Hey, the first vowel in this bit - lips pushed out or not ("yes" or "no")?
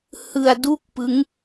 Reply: no